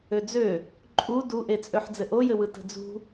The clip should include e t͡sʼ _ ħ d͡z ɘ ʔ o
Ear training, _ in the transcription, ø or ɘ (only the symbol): ø